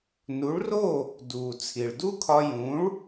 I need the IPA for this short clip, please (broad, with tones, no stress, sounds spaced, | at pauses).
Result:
n u˩˥ ɭ r o˥˩ | d uː˩ t͡sʰ i˩ ɭ d u˥ kʰ ɒ˧ j ũ˩˥ ɭ